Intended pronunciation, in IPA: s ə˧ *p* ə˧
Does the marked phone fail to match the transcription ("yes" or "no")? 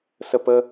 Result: no